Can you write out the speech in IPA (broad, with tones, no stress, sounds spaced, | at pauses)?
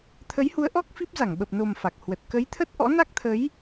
t̪ʰ ə˨˦ j h u˨˦ ə̯ ʔ ɔ˦˥ k̚ f i˦˥ p̚ z a˧˩ ŋ ɓ ə˨˩ p̚ n o˨˩ m f a˨˩ k̚ h w ə˨˩ t̚ k ə˨˦ j t̪ʰ ə˦˥ t̚ ʔ ɔ̰˧˥ n a˦˥ k̚ t̪ʰ ə˨˦ j